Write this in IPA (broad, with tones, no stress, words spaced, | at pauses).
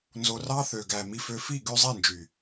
nzo˨rɑ˦ θø˨ɡæ˨ mi˨fø˨fi˦˨ ɡø˦zˤi˦˨nd͡ʒy˨